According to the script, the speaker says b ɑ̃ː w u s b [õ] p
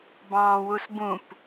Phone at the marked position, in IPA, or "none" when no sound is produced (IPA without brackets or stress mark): ũ